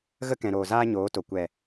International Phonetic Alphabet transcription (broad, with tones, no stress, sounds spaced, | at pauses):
ɣ ə˦ k ɛ̃˨ ɾ oː˨ z aː˦ ɲ oː˨˦ t o˨ kʷ ɛ˨